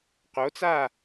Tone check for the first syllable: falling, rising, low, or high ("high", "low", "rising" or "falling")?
rising